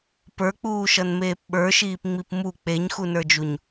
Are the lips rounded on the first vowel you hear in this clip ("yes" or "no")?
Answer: no